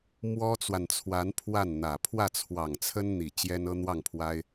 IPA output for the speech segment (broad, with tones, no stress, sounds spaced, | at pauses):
m w ɔ˥ t͡s w a˨ n t͡sʰ w a˧˥ n pʰ w a˥˩ n n̪ ä˨˩ pʰ w ä˥˩ t͡sʰ w ɑ˨˩ ŋ t͡sʰ ə˥ n n̪ i˨˩ t͡ɕ j ɛ˥ n ɤ˥ n̪ w ɑ˥˩ ŋ pʰ w a˥ ɪ̯